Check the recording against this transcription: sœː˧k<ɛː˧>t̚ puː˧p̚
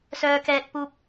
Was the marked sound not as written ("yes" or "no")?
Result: no